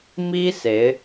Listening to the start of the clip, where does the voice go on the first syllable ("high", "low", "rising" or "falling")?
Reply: high